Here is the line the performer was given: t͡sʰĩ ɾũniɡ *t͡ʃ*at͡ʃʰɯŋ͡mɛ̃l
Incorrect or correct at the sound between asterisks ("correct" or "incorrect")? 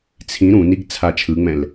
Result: incorrect